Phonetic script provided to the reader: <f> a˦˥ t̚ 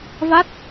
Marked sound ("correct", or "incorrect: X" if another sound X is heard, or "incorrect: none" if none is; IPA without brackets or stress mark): incorrect: v